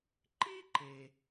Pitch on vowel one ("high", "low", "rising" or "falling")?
high